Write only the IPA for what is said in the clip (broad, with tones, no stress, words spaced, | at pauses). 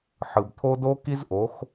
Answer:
ħɯ˨bt̪ʰo˦ do˦ki˦zʔo˨˦x